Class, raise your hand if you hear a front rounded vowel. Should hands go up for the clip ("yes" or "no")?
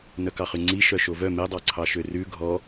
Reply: yes